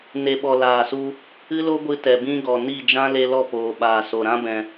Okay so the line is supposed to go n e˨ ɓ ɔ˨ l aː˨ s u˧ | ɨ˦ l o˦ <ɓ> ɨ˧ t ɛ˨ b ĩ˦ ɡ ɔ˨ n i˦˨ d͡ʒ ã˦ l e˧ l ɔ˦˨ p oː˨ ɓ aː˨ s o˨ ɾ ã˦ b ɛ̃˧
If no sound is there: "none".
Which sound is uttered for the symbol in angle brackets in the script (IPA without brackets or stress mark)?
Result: ɡʷ